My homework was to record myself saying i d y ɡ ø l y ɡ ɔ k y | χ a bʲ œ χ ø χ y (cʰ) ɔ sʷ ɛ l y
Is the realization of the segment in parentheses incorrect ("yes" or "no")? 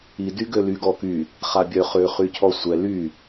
no